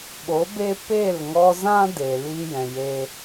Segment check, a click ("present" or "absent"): absent